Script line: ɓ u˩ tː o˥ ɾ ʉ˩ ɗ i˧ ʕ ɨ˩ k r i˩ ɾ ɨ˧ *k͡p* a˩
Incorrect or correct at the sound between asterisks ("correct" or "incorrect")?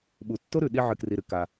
incorrect